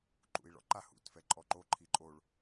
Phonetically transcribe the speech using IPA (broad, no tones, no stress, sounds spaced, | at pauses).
ǃ ṵ i̯ ɭ ɔ̰ ǃ a h ṵ t f ɛ ǃʼ ɔ ǃ o ǃʰ i ǃʼ o ɭ